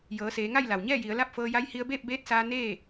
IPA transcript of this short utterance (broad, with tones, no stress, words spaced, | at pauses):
jɤː˩˧seː˩˧ŋa˥˨j la˩wɲɛː˥˨ji˩˧ə̯ la˥˨p̚fɤː˧ja˧˥j hi˧ə̯beː˥˨p̚beː˧˥t̚saː˧ neː˥˨